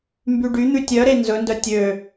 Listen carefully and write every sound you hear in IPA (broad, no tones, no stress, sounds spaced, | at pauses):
m b y ɖ y n̪ ʉ tʲ œ ɾ e n z ɵ n d œ tʲ ø